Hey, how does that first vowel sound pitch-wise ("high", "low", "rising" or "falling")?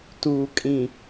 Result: low